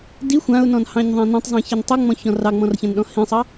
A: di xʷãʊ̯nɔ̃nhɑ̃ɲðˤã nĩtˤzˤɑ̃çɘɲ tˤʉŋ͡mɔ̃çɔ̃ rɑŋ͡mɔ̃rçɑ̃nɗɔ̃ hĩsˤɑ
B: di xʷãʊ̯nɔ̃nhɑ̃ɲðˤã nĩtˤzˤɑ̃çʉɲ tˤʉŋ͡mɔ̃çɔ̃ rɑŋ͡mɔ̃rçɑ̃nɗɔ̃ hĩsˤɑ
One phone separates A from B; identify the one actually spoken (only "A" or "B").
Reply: A